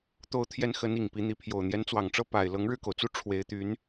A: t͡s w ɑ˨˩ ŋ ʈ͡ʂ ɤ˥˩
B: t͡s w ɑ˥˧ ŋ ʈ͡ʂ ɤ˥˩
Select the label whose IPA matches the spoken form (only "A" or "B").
A